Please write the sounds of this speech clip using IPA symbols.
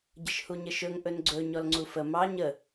ɟ ə ʃ h u ɲ ə ʃ ɵ ŋ ʔ ɵ n ɡ͡ǀ ɵ ɲ ɔ l ŋ͡ǀ u f ə m ɑ ɲ ə

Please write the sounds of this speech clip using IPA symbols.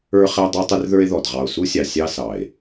ə˞˦ χ ɛ˦ dˤ ə˞˦ tˤ ə˦ r ð ə˞˦ e̯ ð ɔ˨ d ʁ ɑ˨ o̯ s u˦ sʲ ɑ˨ sʲ ɑ˦ s ɑ˨ e̯

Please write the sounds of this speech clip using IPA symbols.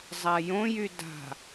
zˤ a j õ j y d a̤

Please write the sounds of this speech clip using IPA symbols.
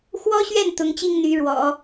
x w ɔ˥ ɕ ɥ ɛ˥˩ n t̪ ʊ˧˥ ŋ t͡ɕ i˥ ŋ n̪ y˧˥ ɻ w ɔ̰˨˩˦

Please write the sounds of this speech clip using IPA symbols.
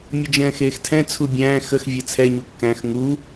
mʲ ə d͡ʒ ɛ̃ː x eː x tʰ ɛ̃ t͡sʰ u bʲ æ̃ː x ə x vʲ ɛ t͡sʰ ɛ ɲ u kː æ̃ x ŋ u

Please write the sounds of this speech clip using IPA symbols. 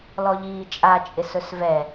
l ɔ ʎ iː t͡ʃʼ a t͡ʃʼ ɪ s ɵ s v ɛ

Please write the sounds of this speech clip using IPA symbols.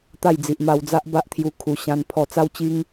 t̪ a˥˧ j d͡z i˨ ʔ m a˧ w d͡z a˦ ʔ b a˦ ʔ t̪ʰ j u˧ kʰ u˨˩ ɕ ã˧ n pʰ ɔ˧ t͡s a˦ w t͡ɕ i˦ ŋ

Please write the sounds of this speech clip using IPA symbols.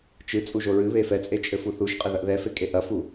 t͡ʃ ɨ t͡sʼ u ʒ o ɹ ɨ β e f ɛ t͡sʼ e t͡ʃʼ ɘ f u θ u ʃ qʼ ɘ ð ɐ ʔ ð ɛ f e kʼ e ʔ ɐ f u

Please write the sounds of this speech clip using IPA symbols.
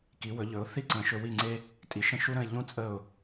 k i˩˥ w ɵ˩˥ ʎ ɵ˩˥ ʊ̯ θ i˥ ǀ ə̃˩˥ ʃ ɵ˧ w i˥˩ ŋ͡ǀ e˥ | tʼ i˩ ʃ ə̃˥˩ ʃ u˥ ɾ ə̃˥˩ ɪ̯ ʎ ũ˥ t͡sʼ ə˥˩ ʊ̯

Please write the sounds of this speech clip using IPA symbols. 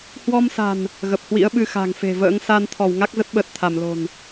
h w ɔ˧ m s a̤˨˩ n | ɣ ə˨˩ p̚ h w ḭ˧˥ ə̯ ɓ ɨ˧ x a̤˨˩ ŋ f e̤˨˩ v ə̰ː˧˥ ŋ s a˧ n t̪ʰ ɔ˧˩ w ŋ a˦˥ k̚ z ə˦˥ t̚ ɓ əː˨˩ t̚ t̪ʰ a˧˩ m l o̤˨˩ n

